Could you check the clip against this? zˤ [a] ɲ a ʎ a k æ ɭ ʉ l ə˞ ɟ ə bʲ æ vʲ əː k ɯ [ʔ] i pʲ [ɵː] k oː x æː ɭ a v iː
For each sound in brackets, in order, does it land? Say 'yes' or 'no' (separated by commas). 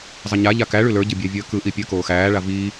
no, yes, no